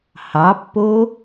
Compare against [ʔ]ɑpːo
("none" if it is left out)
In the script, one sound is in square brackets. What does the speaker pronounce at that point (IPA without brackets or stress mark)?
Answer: h